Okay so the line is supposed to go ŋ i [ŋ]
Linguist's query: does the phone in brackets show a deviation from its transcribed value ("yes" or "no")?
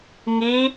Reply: yes